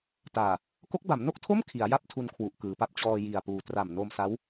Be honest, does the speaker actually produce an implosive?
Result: no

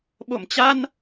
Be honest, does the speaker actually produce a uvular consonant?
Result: no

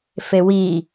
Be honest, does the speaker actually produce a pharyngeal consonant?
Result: no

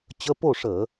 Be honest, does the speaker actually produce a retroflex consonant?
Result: yes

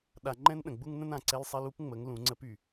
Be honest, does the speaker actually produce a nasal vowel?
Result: yes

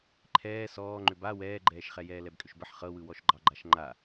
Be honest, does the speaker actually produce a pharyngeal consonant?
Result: yes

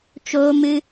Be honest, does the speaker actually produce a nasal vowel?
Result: no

